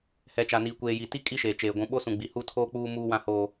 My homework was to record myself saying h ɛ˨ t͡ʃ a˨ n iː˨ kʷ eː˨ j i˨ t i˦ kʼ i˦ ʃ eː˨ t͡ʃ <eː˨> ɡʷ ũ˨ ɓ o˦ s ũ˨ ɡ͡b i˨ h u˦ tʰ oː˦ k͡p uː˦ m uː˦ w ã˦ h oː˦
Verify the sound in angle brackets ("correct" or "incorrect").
correct